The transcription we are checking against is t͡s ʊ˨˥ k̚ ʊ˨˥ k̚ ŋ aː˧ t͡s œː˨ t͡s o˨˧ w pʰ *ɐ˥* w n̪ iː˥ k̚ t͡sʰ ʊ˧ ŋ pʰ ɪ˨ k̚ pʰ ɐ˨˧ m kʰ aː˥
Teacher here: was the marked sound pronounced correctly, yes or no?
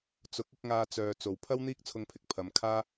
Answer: yes